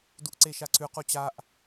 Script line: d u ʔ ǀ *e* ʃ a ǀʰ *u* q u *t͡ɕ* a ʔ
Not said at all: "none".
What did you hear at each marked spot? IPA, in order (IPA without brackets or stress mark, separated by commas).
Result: e, ʉ, t͡ɕ